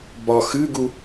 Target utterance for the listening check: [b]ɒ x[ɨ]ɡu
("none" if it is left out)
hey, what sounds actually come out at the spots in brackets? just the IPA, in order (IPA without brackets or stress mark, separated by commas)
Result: b, ɨ